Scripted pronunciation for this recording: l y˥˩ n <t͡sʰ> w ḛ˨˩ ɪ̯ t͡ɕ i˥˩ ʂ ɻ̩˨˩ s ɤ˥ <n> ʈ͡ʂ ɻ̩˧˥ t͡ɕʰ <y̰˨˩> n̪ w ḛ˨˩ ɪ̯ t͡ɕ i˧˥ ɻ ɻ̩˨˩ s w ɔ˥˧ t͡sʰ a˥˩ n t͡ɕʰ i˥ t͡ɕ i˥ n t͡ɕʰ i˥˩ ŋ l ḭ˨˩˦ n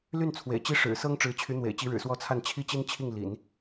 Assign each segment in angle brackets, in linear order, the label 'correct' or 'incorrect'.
correct, incorrect: ŋ, incorrect: y˧˥

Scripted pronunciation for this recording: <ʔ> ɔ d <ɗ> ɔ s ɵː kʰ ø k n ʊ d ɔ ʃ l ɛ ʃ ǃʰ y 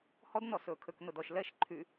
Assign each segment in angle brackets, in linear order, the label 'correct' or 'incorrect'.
incorrect: h, incorrect: n

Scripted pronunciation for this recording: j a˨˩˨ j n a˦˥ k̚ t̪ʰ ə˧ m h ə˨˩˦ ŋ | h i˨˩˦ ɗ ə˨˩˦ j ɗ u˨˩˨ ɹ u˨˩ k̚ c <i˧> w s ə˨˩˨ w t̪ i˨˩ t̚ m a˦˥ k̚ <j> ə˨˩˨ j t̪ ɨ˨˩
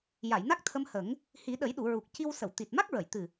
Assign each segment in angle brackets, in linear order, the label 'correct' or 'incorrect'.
correct, incorrect: ɹ

